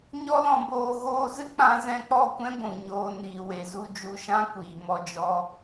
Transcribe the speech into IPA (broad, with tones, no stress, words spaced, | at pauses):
ɲɔ˦lɔ̃˧boː˧ ɣoː˧zɨ˦ k͡pã˦ zɛ̃˧k͡pɔ˦˨kʷɛ̃˦ ɡʷũ˨ɲoː˧ niː˨we˨zu˧ d͡ʒu˧ʃã˦kʷiː˨ mɔ˧d͡ʒɔ˦